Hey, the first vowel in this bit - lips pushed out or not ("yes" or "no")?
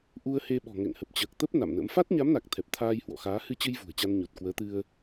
yes